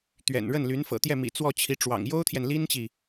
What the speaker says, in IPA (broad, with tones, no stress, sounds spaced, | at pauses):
t̪ ɥ ɛ̰˨˩ n ɻ ə˥˩ n l y˧˥ n f ɤ̰˨˩ t̪ j ɛ˥˩ m ḭ˨˩ t͡s w ɔ˥˩ t͡ɕʰ i˧˥ ʈ͡ʂ w ɑ̰˨˩ ŋ j o˥ ʊ̯ t̪ʰ j ɛ˨ n l i˥ n t͡ɕ i˨